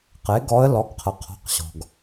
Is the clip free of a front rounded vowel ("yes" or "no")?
yes